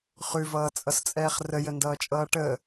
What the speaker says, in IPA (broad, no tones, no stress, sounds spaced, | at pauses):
χ ʉ v ʌː t͡sʼ ʌ s t͡sʼ ɛː χ r ə j ə n d ʌː t͡ʃʼ ʌː ʈ ə